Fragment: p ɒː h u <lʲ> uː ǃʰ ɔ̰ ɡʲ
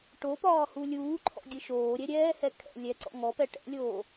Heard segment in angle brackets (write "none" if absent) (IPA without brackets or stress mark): lʲ